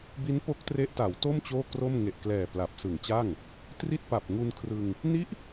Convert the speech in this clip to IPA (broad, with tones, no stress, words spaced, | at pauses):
bi˦˥n po˦˥k̚tre˦˥ʔta˩˦wto˥˩m t͡ɕoː˥˩kro˥˩m ŋe˨˩ʔ klɛː˨˩ pla˨˩p̚sɯ˨˩ŋt͡ɕa˥˩ŋ | tri˥˩t̚pa˨˩p̚ŋu˧nkʰrɯ˧ŋ | ni˦˥ʔ